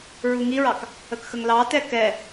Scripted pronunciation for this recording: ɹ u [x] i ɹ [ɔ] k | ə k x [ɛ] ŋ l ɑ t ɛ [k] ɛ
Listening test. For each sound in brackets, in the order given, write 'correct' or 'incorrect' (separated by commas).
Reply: incorrect, incorrect, incorrect, correct